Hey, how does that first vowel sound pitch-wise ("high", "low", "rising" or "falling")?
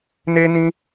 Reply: high